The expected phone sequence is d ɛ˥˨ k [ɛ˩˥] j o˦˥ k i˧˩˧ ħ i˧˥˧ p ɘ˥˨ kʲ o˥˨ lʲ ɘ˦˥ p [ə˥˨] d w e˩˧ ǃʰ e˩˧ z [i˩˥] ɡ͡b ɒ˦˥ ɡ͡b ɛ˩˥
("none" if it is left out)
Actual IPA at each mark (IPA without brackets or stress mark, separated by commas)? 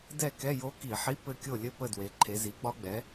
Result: ɛ˧˥˧, ə˥˨, i˩˥